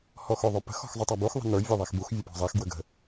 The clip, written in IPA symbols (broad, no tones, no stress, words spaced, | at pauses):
hɔxoðˤopə̤x ɔ̤xzˤutˤabux ðˤə̤nə˞ vʲœðˤɛxbux vʲəpɔ̤zˤɛx ɡwəɡə̤